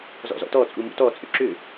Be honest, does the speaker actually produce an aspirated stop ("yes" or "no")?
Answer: no